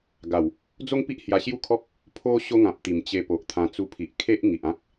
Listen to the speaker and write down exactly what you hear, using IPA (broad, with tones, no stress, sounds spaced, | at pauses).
ɡ a˨˩ w | d͡z o˦ ŋ p i˦ ʔ h j a˧ ɕ j u˥˧ kʰ ɔ˦ k̚ | pʰ o˦ ɕ o˦ ŋ ã˨ p̚ t̪ i˨˩ m t͡ɕ e˧ p o˨ ʔ t̪ʰ ã˧ t͡s u˧ pʰ i˨ ʔ kʰ e˦ ʔ ŋ i˨ ʔ ã˦ k̚